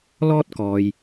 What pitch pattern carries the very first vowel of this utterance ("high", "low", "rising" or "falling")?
high